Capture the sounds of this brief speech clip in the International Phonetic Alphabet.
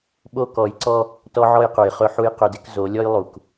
ɓo˦kɔ˨˦jǀɔ˦ | tɔ˦ʕɔ˦jqu˨jχɵ˦ ħu˦jqɵ˦dɪ˦k zo˨˦lʲɔ˦jlˠu˨k

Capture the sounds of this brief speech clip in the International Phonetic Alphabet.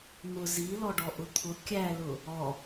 n̪ʊ zilɔɖɔ ʔʊt̪ʰʊ kʲælʊ | ɔ

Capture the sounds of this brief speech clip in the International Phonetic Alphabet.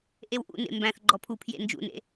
ʔewʔṵnḛ mbæ̃θ ɡ͡ǃɔpʰupʰjḛ nd͡ʒṵnḛ

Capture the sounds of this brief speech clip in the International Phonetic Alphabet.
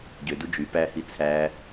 ɟødu d͡ʒy pæhi t͡sʰæ

